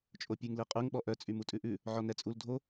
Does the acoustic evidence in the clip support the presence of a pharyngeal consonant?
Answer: yes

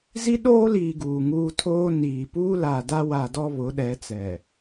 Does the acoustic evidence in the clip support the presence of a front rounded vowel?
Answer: no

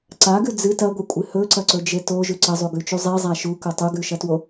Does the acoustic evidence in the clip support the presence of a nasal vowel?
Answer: no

